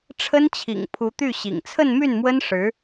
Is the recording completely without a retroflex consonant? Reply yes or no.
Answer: no